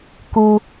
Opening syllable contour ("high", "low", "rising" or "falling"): low